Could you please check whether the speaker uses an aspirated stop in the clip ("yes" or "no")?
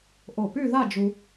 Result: no